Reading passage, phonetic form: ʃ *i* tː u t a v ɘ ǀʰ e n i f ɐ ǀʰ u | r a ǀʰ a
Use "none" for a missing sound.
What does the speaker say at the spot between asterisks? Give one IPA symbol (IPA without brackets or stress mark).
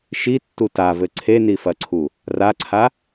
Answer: i